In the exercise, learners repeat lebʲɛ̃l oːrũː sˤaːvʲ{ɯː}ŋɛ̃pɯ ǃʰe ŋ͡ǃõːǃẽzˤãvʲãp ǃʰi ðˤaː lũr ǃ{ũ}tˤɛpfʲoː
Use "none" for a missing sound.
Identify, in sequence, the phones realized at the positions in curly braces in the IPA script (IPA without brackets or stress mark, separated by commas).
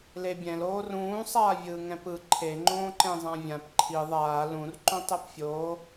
ɯː, õ